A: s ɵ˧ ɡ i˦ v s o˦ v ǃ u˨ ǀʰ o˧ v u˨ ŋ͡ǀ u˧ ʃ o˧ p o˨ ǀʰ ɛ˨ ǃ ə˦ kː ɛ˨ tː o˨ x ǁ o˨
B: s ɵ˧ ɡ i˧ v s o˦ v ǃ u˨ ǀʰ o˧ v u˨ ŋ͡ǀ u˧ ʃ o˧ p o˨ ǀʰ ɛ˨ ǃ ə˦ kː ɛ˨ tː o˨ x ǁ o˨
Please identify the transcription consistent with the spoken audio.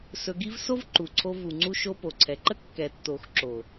A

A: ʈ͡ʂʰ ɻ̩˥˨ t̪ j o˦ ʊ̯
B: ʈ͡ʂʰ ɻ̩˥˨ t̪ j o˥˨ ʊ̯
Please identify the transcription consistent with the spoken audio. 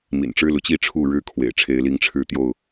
B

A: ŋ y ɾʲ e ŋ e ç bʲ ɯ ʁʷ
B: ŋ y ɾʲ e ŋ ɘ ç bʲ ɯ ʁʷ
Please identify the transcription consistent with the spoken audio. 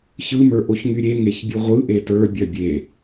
A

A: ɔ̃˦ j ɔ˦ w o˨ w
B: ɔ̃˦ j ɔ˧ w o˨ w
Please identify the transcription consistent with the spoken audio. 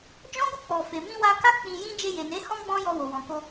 B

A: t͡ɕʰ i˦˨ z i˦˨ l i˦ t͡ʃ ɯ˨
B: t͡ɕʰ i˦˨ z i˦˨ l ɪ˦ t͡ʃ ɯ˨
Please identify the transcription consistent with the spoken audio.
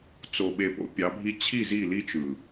A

